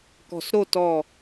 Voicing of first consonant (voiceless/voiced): voiceless